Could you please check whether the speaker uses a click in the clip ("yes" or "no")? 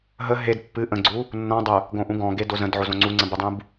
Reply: yes